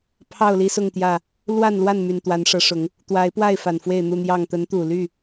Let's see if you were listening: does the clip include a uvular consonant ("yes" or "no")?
no